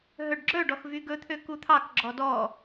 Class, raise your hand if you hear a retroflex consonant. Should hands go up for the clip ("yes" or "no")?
yes